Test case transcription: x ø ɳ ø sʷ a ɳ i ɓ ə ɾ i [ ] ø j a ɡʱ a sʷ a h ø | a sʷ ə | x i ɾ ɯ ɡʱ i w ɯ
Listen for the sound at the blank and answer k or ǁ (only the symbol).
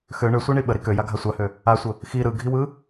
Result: k